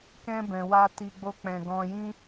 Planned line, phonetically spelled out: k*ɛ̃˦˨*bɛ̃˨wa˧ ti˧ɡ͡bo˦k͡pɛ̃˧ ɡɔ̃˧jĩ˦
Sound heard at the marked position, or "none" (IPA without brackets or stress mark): ɛ̃˧